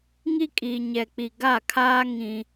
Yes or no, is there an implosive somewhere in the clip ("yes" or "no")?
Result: no